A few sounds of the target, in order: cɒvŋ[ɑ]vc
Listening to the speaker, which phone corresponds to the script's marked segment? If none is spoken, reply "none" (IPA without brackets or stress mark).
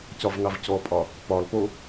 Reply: ɑ